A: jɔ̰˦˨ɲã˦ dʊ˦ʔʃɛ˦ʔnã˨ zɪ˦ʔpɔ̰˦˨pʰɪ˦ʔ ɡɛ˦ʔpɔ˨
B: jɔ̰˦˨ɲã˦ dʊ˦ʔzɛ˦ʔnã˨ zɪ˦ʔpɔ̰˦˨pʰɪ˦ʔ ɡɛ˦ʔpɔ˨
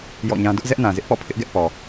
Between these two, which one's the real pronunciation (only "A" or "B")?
B